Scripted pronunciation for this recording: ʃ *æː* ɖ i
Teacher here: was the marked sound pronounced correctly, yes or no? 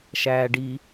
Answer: yes